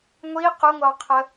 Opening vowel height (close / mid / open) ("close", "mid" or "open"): close